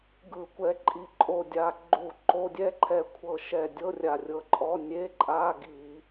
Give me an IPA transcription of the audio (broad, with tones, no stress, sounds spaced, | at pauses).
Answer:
ɡ ɯ˧˩˧ kʷ ɛ˧ ǃʼ i˧ ǃʼ o˧˩ dʲ a˧ ɡ͡ǃ u˧˩˧ ǃ o˧˥˧ dʲ ɛ˥ ǃʰ ɛ˧˩ kʷʰ ɤ˧˩ ʃ ɛ˧˩ dʲ ɤ˧˥˧ rʲ a˧˩ rʲ ɤ˧˩ ǃʼ ɔ˧˥˧ nʲ e˧˥˧ ǃʼ a˧˥˧ ɡ i˧˩˧